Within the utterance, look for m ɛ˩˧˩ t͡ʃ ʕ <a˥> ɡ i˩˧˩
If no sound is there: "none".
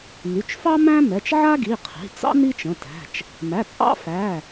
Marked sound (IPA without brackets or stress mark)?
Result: a˥